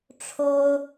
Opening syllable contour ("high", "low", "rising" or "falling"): high